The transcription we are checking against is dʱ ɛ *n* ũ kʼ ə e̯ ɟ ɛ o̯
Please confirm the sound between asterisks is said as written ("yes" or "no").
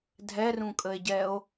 no